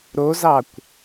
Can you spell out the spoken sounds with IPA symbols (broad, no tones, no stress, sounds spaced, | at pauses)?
ɾ o z ɑ kʷ